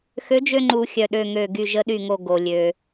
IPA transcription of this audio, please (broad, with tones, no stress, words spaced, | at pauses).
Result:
xø˨˥d͡ʒø˧ ŋ͡ǃu˨˩˦xʲœ˩ ɗø˧˩ŋø˧˩ ɡy˧˩ʒə˨˥ɗy˧˩ŋo˧˩ ɡo˩lʲø˩